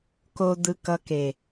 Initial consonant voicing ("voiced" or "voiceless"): voiceless